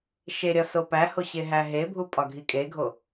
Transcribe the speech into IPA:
ʃ e ɾʲ ɒ s o p æ h o ɕ e ɦ æ ɦ e bʱ u pʼ ɒ ɡʱ i kʼ e ɡʱ o

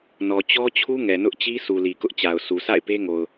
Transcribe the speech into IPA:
n ɔ˨ t͡ɕ ɔ˦ t͡ɕʰ u˦ ŋ ɛ˨ n ʊ˦ ʔ t͡ɕ i˦ s u˨ l i˨ k ʊ˦ ʔ t͡ɕ a˨ ʊ̯ sʰ u˨ s a̰˦˨ ɪ̯ p e˦ ŋ o˨ ʊ̯

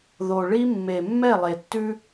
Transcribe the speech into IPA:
ð o˨ ɭ i˦ mː e˨ mː ɛ˦˨ lˠ e˨ tː ʉ˦

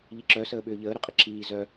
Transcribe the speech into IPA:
ʎ i ǁ œ s əː ɓ ʏː ʎ əː ɾ ʏ qʼ ɪ ǁ iː z œ

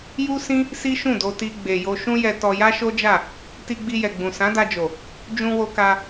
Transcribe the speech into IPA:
j u˦ s ĩ˦ | s i˦ ʃ ũ˦˨ d o˧ t i˧ ɡ͡b e˨ j o˧ ʃ ũ˦ j ɛ˧ t ɔ˧ j a˦ ʃ o˦ d͡ʒ a˦˨ | t i˧ ɡ͡b i˧ j ɛ˨ ɡ͡b ũ˨ s ã˨˦ d a˧ d͡ʒ o˨ | d͡ʒ ũ˧ w o˧ k a˧

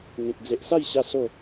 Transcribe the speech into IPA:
ŋ ẽ˨ k̚ d͡z e˨ ʔ s a˥˧ j ɕ a˧ s o˥˧

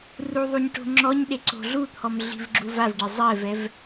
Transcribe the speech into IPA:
r u ðˤ u ɲ ʈ o̤ ŋ͡ǁ ɔ ɲ ɗ e ǀ o̤ ɮ u t̪ʰ ɔ m ɮ i̤ v ɡ͡ǁ u v a v ɖ e zˤ ɛ v ɛ v

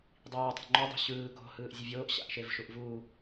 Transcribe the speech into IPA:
dˤ iː tˤ a̤ ŋ͡ǃ o dˤ ṳ ɕ ɯː k o̤ h ɯː ʔ zʲ ɯ vʲ oː ʔ ɕ a̰ ʔ ʃ e v ʃ u ʔ v uː

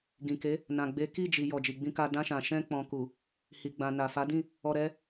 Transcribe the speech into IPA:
ɡ ĩ˨ k e˨˦ | n ã˨ ɡ͡b e˨˦ k i˦˨ d͡ʒ i˨ j ɔ˨ d͡ʒ i˨ ɡ͡b ĩ˧ k a˧ d ã˧ ʃ ã˨ ʃ ɛ̃˧ k͡p ɔ̃˨ k u˨ | h i˨ ɡ͡b ã˨ n a˨ f a˨˦ d ĩ˦˨ | ɔ˧ ɾ ɛ˦

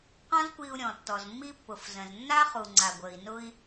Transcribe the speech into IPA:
q ɔ̃˥ z kʷ i˧ u̯ ɾʲ ɔ̃˩ tː ɔ˩ z mː i˥ pː ʊ˩ f z ə̃˩ z nː a˥ χ u˩ ŋ͡ǀ a˩ ɡʷ ə˩ i̯ n ʊ˧ i̯

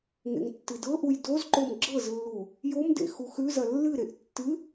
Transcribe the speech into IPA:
ŋ ḛ ŋ tː ɨ d ɤ ʔ u j d o z ǃ o m ɡ͡ǁ ɤ z lː u | j o m d ḛ x u x ʉ z ɐ lː ɨ ɾ e ʔ tː ɨ

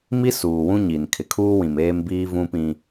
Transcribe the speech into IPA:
m i˦ s uː˨ w ũ˦ ɲ i˨ n kʰ ɪ˨ kʰ uː˦ w ĩ˨ m eː˦ m b iː˦ v ũ˦ p ĩ˦

